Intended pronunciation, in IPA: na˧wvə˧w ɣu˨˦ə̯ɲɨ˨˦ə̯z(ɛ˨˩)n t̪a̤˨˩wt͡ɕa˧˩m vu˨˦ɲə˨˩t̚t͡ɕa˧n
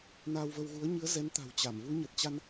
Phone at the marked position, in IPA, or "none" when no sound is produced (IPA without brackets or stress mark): ɛ˨˦